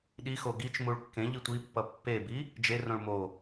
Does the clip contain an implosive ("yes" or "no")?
yes